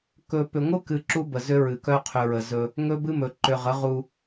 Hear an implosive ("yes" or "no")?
no